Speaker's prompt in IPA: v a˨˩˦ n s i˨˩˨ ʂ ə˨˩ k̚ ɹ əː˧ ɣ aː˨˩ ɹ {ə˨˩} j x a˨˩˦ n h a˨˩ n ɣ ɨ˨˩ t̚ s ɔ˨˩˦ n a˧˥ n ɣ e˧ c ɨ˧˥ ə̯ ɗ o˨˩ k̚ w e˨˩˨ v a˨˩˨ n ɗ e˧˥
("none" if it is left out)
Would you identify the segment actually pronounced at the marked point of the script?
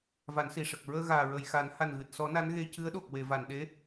ə˨˩˨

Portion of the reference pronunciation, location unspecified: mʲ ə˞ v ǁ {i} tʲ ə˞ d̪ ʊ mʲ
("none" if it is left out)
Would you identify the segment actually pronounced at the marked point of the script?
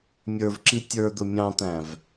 i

